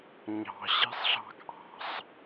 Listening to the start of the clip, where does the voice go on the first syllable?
low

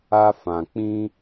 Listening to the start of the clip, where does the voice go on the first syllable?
high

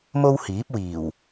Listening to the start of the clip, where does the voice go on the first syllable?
high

